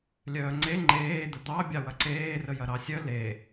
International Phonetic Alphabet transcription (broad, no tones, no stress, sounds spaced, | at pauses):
lʲ œː ŋ͡ǀ e ŋ͡ǃ eː d̪ ə d̪ ɑ bʲ ɑ w ɐ ǀ eː r ə j ɐ ɾ ɑ sʲ œ l e